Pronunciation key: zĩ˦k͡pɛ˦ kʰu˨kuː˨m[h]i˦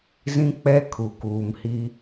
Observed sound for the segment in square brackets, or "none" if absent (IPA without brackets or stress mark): h